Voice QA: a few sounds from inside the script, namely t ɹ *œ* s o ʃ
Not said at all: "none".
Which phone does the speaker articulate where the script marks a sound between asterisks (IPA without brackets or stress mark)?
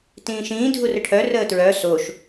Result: œ